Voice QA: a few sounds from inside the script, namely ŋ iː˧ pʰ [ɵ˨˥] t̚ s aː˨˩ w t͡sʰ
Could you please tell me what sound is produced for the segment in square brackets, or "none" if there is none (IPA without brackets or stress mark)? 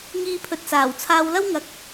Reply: ɵ˨